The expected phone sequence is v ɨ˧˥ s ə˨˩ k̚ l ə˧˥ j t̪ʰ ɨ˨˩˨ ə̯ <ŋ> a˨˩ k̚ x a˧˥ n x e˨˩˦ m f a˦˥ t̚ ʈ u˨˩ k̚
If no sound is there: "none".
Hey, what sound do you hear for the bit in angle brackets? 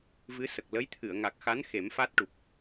ŋ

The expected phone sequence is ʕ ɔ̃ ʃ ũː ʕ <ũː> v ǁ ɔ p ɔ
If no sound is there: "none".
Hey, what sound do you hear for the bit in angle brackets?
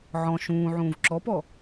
ũː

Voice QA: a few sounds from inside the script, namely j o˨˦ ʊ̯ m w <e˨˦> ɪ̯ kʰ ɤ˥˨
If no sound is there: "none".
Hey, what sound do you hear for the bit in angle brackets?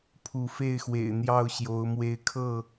e˨˦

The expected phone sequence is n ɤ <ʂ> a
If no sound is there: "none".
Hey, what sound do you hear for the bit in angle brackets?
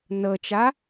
t͡ʃ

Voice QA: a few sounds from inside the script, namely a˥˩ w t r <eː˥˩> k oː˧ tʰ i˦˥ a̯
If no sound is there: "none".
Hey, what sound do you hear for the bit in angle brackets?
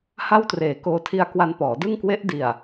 eː˨˩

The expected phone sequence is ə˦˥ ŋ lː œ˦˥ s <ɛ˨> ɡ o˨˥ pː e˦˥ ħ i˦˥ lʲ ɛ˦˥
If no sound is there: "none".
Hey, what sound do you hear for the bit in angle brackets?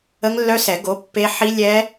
ɛ˨˩˦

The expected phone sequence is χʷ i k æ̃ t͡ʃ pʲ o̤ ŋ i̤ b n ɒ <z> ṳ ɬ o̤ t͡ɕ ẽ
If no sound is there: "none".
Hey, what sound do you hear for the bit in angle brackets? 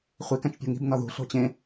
ð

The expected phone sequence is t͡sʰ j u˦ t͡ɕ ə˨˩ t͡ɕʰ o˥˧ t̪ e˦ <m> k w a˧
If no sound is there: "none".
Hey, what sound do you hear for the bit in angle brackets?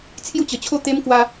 m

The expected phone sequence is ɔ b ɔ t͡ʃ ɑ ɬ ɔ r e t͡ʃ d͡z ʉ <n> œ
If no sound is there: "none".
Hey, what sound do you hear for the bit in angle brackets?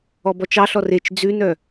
n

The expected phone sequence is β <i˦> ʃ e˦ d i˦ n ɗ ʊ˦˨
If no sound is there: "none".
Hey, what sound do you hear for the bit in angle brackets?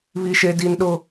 i˦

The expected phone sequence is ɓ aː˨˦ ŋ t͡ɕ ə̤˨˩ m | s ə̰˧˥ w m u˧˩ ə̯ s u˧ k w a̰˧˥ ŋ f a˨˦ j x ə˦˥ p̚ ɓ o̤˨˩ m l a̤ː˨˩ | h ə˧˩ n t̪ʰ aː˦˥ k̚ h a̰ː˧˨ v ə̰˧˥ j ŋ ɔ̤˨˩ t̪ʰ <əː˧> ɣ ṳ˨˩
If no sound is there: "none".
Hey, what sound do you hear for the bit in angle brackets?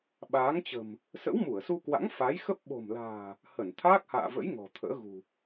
ə̰ː˧˥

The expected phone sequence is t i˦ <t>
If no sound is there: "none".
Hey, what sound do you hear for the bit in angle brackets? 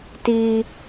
none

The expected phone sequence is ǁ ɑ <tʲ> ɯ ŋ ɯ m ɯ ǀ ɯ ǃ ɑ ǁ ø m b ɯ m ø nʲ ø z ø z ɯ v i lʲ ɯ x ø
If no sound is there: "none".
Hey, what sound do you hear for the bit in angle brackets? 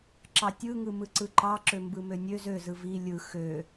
tʲ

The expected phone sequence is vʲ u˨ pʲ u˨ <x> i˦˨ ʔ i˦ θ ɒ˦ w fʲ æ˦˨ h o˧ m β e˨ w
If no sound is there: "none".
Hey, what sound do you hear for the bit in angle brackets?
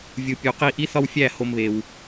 q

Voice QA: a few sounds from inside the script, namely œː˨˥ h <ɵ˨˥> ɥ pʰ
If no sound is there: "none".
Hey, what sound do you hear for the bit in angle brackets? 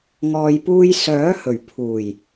ɵ˨˩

